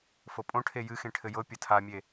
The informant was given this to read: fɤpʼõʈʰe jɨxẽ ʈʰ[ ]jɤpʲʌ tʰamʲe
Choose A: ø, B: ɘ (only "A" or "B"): B